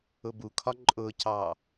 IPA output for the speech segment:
ʊbukʰɒ ǃʼʊcɑ

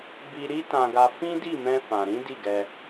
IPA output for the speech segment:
bi˦ ɾi˦tã˧ɡa˧ fĩ˦di˦˨mɛ̃˧ fã˨ɾĩ˨˦ di˦˨ɡɛ˧

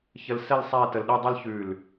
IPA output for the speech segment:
çə˧lsɛ˥˧l sˤæ˥˧tə˧lɗɯ˥˧dˤɯ˥l çʉ˧˩l

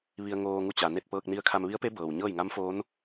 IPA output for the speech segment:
ʋi˧ə̯ŋoː˧ŋu˧ t͡ɕa˩ne˥˨t̚ pɤː˧k̚ni˧˥ə̯kʰa˧m ʋi˧˥ə̯pe˧˥ bɤː˩wɲɤː˥˨j ŋa˧˥mfoː˧˥n

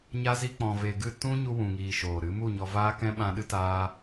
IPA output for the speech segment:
ɲa˦zi˦k͡pɔ̃˧ ve˧ɡɨ˦˨ tũ˦ ɲu˧wũ˨ŋiː˨ ʃoː˨ ɾɨ˨˦ mu˦˨ɲɔ˧vaː˦kɛ̃˦ ɓã˧ɗɨ˦taː˦

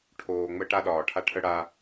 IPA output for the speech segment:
ʈʰoː˨ ŋ͡mə˦ ʈa˦ɗɒː˨ʈʰa˦ ʈʰə˦ɽa˦

